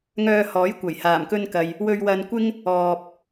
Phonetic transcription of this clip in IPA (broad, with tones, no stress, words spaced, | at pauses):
ŋœː˧hɔː˨˥jkʷɐ˨˩j haː˨˩mkɵ˧nkɐ˨j | wɵ˧ɥwɐ˧nkʷɪ˥ŋ | ɔː˧p̚